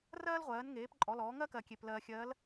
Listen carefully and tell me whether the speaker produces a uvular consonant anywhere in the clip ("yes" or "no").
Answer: yes